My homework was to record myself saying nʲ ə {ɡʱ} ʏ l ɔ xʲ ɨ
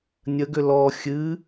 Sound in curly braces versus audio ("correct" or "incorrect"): incorrect